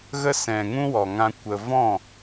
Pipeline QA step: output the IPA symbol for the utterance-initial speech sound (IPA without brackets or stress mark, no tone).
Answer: ɣ